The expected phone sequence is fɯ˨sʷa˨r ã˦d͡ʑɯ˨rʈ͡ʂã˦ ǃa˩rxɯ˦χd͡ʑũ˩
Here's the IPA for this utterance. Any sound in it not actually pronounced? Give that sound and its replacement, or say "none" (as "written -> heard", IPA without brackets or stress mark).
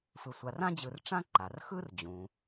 χ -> r